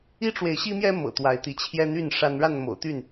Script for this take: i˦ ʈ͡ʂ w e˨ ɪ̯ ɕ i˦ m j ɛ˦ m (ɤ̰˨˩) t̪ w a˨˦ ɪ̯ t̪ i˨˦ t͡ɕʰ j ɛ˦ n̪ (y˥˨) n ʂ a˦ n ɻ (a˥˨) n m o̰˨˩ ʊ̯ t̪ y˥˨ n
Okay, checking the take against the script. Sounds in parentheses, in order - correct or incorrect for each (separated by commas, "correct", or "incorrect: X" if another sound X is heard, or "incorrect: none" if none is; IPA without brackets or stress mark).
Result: correct, correct, correct